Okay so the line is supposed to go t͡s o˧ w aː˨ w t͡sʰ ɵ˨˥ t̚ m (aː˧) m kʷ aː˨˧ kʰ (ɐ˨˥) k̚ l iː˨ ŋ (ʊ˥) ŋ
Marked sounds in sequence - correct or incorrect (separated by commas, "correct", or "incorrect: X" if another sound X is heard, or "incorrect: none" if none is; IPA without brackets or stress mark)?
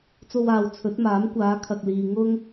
incorrect: aː˨˥, incorrect: ɐ˨, correct